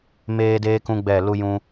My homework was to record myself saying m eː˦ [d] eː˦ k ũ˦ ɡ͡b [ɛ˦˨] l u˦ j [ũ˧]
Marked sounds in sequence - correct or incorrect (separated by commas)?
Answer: correct, correct, incorrect